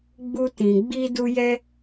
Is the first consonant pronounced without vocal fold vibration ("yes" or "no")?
no